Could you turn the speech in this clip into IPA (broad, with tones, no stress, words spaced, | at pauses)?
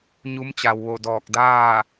ɲu˧˥mt͡ɕa˩wʋo˧˩ dɔː˧˩k̚daː˥˨